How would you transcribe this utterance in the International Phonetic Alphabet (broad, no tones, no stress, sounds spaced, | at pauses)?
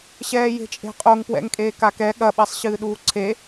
ɕ ɛː j e̤ t͡ʃʼ e̤ qʼ o ŋ p w ɛ̰ ŋ kʼ eː k a k ɛ ɠ ɐ ɓ ɛ sˤ ɕ ɨː ɗ uː ǀʰ e